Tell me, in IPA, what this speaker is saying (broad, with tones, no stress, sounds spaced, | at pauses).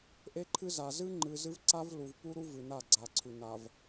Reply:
ʔ e˦ ǃʰ ɨ˦ z a˨ z ɨ˦ ŋ͡ǃ ɨ˨ z ɨ˦ v ǀ a˦ v l u˨ v p u˦ ɾ u˦ v ɨ˨ n a˦˨ ɡ͡ǀ a˨ ǀʰ ʉ˨ n a˨ v